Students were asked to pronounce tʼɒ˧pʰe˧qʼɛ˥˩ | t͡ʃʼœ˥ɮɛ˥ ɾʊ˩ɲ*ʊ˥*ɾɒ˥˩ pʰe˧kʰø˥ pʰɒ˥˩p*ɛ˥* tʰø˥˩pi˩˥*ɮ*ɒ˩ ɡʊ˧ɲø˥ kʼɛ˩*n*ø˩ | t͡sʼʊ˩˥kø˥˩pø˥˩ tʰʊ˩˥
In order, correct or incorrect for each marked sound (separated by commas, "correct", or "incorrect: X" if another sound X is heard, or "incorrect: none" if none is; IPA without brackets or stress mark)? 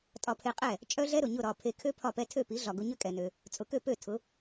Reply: incorrect: ʊ˥˩, correct, correct, correct